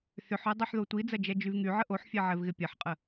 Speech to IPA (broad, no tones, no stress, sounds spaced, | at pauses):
θ ʏ ħ œ dˤ ɛ ħ ð o tʷ i d͡z ɐ d͡ʒ ɛ d͡ʒ y v ŋ y ʕ ə ʔ o ħ fʲ ɛ ʕ ɛ v ɣ ɪ pʲ ɐ ħ qʼ ə